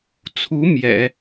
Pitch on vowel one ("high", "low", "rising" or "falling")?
rising